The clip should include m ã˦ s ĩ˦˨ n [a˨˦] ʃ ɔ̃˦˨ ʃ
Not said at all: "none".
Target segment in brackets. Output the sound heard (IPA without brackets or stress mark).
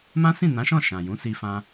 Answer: ã˨˦